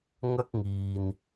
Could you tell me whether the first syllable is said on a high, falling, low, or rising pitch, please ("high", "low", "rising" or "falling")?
high